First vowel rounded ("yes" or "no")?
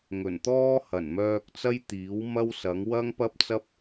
yes